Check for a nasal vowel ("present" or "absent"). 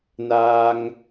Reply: absent